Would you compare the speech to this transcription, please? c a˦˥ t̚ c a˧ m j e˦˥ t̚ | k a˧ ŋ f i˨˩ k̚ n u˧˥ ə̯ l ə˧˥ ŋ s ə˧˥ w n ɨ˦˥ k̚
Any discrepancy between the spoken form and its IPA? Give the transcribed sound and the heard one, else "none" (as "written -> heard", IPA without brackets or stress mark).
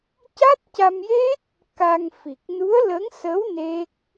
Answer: ɨ˦˥ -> e˦˥